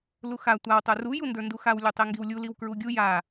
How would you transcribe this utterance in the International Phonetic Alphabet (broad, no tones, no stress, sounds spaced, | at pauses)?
l u x a tʷ a w tˤ ə˞ r u j u n d ə˞ n d u x a w lʲ u tˤ i ŋ ɡ i w lʲ u l i w k ɹ u ɡʲ u j a